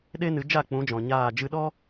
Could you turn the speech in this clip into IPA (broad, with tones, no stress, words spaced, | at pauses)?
ɗe˦nɨ˨˦ d͡ʒa˦˨k͡pũ˨˦d͡ʒɔ̃˨ ɲaː˦˨ d͡ʒɨ˧ɗɔ˦